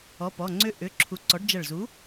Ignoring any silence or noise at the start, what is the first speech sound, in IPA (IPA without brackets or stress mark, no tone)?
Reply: ɔ